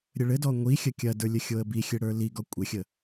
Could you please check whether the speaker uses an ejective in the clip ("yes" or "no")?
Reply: yes